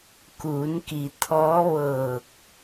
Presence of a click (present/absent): absent